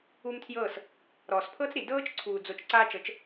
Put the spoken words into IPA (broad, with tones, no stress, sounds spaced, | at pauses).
u˦ m tʰ j ɤː˦˨ s | ɾ ɔː˨ s pʰ ɤ˦ t͡s ɾ i˨ d ɤː˦ t͡ʃ ǀʰ uː˨ d͡z o˧ t͡ʃ ǀ aː˧ t͡ʃ ɤ˨˦ t͡ʃ